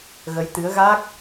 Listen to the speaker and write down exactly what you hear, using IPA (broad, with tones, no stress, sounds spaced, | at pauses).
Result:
ɣ ə˨˦ j t̪ ɨ˨˦ ə̯ ɣ a˦˥ k̚